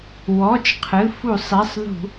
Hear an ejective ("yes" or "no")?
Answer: no